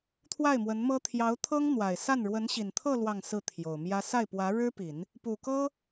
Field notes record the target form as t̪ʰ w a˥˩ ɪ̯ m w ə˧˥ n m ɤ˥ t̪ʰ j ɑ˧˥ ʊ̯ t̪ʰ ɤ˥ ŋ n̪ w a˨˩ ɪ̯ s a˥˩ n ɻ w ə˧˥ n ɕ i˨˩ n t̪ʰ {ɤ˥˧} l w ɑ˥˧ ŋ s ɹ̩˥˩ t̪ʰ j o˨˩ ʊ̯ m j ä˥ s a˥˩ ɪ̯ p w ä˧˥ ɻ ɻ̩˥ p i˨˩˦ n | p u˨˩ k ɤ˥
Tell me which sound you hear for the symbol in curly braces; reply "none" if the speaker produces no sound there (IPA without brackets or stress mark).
ɤ˥˧